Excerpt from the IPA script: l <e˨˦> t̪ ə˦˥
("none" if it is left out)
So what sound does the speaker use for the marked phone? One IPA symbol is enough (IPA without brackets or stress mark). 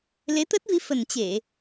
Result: e˨˦